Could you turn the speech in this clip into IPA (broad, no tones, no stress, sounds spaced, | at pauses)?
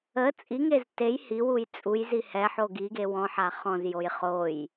ə t͡sʼ i ŋ e z t e j h i w u j t͡sʼ u j z i h ɛ ħ o ɡ i ɡ e w ɔ̃ ħ a χ ɔ̃ z j o j χ o j